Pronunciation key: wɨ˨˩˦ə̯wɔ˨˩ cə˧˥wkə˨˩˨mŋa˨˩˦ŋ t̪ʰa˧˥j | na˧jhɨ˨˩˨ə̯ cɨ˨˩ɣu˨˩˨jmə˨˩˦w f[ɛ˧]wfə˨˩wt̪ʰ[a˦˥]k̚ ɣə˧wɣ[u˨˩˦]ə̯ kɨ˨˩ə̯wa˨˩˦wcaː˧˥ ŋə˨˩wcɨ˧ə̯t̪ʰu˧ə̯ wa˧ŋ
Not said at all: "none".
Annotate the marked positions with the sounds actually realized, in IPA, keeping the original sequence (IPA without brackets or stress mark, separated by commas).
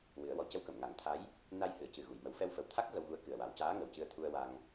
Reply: ɛ˧, a˦˥, u˧